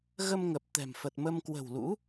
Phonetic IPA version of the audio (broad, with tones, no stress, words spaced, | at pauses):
ɣə˧mŋə˨˩p̚ t̪ɛ̤˨˩mfə˨˩t̚mə˧m kwə̤˨˩wlṵ˧˥